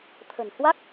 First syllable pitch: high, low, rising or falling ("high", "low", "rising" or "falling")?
low